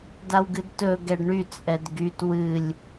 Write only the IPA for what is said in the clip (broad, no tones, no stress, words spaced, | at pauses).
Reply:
dawɡɨdtɵ ɡɛɖɳy t͡sʼɛdɡyt wɨlʲ